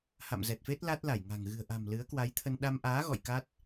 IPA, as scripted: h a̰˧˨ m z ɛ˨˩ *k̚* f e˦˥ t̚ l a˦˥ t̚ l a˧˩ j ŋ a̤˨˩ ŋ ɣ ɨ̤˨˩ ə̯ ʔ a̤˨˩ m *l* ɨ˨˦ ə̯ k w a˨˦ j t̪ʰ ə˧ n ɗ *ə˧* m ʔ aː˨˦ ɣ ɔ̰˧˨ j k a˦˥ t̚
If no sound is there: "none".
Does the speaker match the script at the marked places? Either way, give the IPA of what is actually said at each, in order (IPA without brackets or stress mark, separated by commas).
t̚, l, a˧